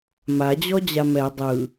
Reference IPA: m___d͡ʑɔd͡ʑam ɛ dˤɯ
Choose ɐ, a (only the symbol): a